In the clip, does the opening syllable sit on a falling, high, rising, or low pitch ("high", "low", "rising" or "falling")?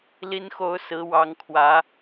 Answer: high